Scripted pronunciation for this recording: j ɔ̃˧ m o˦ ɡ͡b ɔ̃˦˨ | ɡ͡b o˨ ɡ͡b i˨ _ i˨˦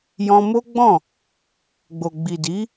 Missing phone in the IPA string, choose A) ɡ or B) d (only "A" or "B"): B